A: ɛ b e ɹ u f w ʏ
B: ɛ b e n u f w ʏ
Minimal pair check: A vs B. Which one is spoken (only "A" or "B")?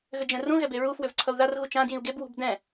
A